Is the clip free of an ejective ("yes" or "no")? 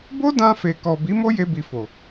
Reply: yes